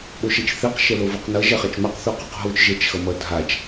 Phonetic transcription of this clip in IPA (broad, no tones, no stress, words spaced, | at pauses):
ɓoʃɛt͡ʃθiq ʃɛloviqnʌ ʒɛχat͡ʃmaq θuqoqɦot͡ʃ ʒɛt͡ʃxʌmʌdʱat͡ʃ